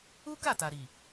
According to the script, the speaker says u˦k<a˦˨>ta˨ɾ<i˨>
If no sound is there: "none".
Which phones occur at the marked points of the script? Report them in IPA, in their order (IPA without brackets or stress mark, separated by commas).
a˦˨, i˨